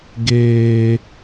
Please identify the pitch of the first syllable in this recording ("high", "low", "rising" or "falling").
high